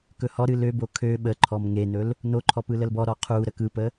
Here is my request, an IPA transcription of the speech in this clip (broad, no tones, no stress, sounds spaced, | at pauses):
k ɵ h ɔ ɾ ɨ l ø b o kʰ ø ɓ ə ǃʰ ɔ m ŋ e n ɵ l | n o ǃʰ ɔ p ɯ l ə l b ɔ ɾ ɔ qʰ u ɾ ə k ɯ p ə